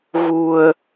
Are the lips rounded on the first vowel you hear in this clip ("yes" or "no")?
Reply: yes